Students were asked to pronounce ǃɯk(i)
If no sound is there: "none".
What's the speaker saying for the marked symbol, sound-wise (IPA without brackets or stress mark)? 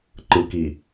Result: i